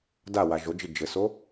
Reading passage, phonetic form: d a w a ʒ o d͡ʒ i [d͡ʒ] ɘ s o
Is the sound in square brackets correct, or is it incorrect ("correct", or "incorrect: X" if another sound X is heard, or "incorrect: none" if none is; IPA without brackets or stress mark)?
correct